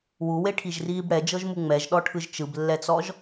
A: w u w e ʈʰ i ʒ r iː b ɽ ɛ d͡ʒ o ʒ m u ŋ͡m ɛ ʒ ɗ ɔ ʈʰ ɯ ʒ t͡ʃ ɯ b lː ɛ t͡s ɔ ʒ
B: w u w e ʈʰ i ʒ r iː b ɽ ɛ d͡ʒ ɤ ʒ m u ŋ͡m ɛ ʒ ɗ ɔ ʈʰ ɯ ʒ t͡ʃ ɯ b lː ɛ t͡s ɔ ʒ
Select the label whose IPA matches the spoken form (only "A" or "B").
B